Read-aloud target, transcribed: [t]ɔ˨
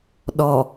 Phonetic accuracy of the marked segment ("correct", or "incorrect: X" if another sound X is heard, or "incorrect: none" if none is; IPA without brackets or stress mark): incorrect: ɗ